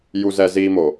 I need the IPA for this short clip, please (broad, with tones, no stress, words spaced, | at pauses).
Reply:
ju˨zɛ˨ ziː˦mo˨